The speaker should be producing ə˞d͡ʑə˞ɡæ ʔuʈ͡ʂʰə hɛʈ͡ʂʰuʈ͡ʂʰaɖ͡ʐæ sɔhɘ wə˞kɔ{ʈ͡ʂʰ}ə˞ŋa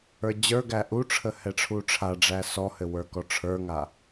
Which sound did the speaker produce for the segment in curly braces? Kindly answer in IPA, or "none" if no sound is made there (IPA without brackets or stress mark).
ʈ͡ʂʰ